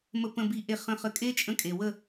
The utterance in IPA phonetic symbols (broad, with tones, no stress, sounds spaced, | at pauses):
m ə˨ p ə̃˨ b i˨ ʔ e˨ χ ə̃˨ χ ə˨ kʼ e˦ t͡ʃʼ ə̃˦ kʼ e˨ w ə˦˨